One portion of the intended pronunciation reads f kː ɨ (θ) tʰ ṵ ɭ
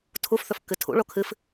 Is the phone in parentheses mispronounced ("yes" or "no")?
yes